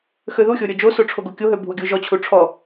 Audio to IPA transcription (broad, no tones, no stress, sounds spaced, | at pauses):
x ø ð u xʲ o ɾʲ ɔ d͡ʒ o s o ʈ͡ʂʰ o ɡ o kʲ o ɦ ø bʱ u ɡʲ o ʒ ɔ t͡ɕʰ u ʈ͡ʂʰ ɔ